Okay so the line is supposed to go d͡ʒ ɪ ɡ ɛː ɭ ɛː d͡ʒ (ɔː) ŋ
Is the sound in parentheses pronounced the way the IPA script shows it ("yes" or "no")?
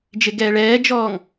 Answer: yes